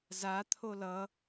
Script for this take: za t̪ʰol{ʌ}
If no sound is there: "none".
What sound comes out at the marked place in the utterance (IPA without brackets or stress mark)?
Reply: ʌ